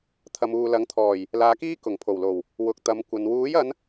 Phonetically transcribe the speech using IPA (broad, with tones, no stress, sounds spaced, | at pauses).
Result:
t̪ʰ ɐ˨ m uː˨ l ɐ˨˥ ŋ t̪ʰ ɔː˨˩ j | l aː˨˧ k iː˥ k ʊ˨˩ ŋ pʰ o˨˩ w l o˨˩ w | w ʊ˨˥ k̚ t̪ ɐ˨˧ m kʷ ɐ˨ n w uː˨˥ j ɐ˨˧ n